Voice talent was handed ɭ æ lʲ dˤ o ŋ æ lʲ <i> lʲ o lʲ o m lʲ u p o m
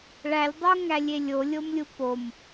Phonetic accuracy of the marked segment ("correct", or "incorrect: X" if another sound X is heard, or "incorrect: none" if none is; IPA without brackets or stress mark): incorrect: e